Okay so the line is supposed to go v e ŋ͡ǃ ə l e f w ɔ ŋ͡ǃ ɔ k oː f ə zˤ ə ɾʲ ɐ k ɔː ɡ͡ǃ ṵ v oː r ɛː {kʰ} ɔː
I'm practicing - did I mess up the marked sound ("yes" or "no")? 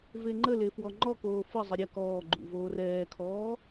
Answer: no